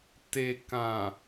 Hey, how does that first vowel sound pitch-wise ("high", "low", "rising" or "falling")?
low